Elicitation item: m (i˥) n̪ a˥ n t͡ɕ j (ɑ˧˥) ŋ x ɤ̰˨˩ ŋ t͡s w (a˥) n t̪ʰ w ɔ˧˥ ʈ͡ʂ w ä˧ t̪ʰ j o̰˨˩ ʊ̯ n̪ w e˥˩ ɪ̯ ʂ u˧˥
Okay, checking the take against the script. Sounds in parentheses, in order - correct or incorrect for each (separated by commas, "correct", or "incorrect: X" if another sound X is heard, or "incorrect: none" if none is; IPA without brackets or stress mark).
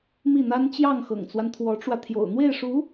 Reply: incorrect: i˥˩, incorrect: ɑ˥˩, incorrect: a˦